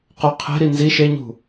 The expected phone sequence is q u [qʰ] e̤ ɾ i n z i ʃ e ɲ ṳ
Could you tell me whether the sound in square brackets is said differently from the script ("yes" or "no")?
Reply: no